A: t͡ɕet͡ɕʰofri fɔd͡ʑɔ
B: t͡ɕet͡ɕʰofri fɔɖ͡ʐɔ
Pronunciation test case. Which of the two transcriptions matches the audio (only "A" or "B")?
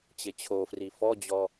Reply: A